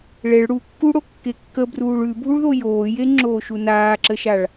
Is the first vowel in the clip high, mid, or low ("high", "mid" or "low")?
mid